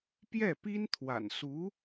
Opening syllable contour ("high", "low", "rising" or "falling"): falling